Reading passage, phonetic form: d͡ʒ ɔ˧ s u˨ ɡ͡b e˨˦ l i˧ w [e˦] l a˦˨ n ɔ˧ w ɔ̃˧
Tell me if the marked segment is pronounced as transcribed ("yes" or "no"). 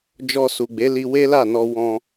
yes